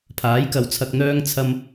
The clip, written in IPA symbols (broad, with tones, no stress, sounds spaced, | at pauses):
pʰ aː˨˥ j k ɐ˨ w t͡sʰ ɐ˧ k̚ n̪ œː˧ ŋ t͡sʰ ɐ˧ m